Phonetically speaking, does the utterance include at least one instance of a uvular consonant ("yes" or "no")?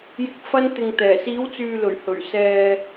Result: no